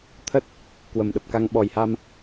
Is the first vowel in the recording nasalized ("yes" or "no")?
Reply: no